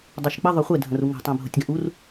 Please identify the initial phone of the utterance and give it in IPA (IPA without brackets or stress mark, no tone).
dˤ